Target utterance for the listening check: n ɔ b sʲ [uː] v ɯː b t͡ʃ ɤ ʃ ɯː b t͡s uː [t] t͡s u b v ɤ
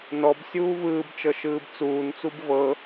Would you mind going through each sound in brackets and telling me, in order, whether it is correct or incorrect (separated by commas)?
correct, incorrect